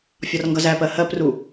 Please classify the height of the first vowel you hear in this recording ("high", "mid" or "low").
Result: low